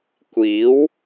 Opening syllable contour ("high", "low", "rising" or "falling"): rising